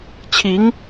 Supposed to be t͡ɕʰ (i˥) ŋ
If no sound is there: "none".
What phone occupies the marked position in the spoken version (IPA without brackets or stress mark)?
i˧˥